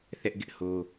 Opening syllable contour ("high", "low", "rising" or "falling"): high